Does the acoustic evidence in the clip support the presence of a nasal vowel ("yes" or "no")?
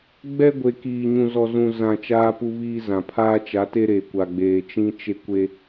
yes